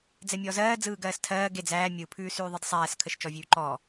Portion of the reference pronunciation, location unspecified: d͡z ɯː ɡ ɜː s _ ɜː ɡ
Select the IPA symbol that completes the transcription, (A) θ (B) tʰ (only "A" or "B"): B